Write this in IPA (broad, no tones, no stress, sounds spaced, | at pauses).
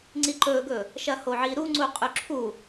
ŋ͡ǀ i ǃ ɵ ɡ ɵ | ʃ ɐ h o ʕ i ɾ u ŋ͡ǀ u qʼ ʉ ǁʰ u